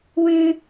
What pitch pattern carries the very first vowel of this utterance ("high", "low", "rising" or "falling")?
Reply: high